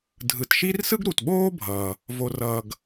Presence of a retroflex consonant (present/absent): absent